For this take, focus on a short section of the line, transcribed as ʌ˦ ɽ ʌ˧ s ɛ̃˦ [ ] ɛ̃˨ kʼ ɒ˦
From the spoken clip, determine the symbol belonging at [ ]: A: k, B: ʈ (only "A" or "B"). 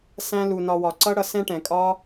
B